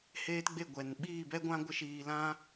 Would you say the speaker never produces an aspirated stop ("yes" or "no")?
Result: yes